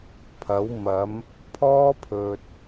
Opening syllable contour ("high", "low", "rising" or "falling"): rising